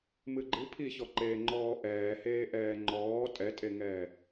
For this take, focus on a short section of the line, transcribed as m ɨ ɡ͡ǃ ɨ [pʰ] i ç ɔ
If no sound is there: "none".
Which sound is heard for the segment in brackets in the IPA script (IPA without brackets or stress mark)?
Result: pʰ